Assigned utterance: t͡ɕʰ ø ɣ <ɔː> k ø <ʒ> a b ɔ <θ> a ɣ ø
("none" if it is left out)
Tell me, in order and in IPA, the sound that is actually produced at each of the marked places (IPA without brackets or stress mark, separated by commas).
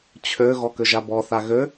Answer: ɔ, ʒ, θ